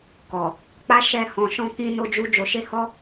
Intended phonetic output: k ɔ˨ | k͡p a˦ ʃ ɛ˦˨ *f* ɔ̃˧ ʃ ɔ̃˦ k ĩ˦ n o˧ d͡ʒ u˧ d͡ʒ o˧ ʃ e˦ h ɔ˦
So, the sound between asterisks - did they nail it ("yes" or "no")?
no